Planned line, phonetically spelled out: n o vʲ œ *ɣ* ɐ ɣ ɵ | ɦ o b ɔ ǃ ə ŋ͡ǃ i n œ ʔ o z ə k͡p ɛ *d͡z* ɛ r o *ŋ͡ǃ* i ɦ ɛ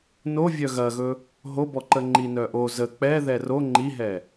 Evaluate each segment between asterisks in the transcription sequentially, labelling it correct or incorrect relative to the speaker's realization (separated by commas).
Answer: correct, incorrect, correct